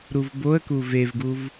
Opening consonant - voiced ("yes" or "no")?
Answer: yes